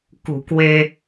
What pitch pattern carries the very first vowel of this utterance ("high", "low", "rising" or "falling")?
low